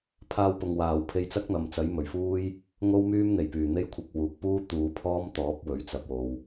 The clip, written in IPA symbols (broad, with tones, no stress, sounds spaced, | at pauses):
pʰ aː˧ w p ʊ˨ ŋ w aː˨˩ w pʰ e˧ j t͡s ɐ˥ k̚ n̪ ɐ˨ m t͡s ɐ˨˥ j m ɵ˨˩ ɥ f uː˥ j | ŋ o˥ w m yː˥ m n̪ e˨˩ j p yː˨˩ n̪ e˥ j kʷʰ ɐ˧ k̚ w uː˨ k̚ p uː˥ t̪ uː˨˧ pʰ ɔː˥ m t̪ ɔː˨˥ p̚ w ɵ˨˥ ɥ t͡s ɐ˨˥ p̚ w o˨ w